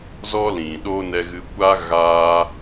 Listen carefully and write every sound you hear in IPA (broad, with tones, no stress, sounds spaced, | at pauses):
z ɔ˦ l ĩ˨ ɗ o˦ n ɛ˧ ɣ ɨ˧ kʷ a˦ ɣ aː˦